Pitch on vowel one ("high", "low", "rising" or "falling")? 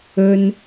high